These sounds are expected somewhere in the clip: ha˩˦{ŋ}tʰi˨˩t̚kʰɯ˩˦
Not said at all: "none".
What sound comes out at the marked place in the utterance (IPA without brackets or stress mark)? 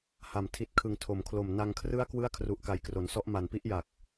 m